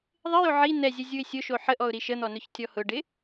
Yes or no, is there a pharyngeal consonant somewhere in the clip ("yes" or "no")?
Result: yes